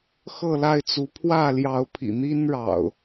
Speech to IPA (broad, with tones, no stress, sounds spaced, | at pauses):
x ɤ˥˨ l a˥˨ ɪ̯ t͡s u˨˦ pʰ w ä˥˨ l j ɑ˨˦ ʊ̯ pʰ ḭ˨˩ n̪ i˦ n ɻ ɑ̰˨˩ ʊ̯